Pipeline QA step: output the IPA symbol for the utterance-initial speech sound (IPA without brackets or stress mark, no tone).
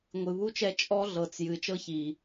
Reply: ŋʷ